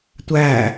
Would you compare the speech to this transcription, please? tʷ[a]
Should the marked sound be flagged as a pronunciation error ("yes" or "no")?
yes